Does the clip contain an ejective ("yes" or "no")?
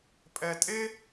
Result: yes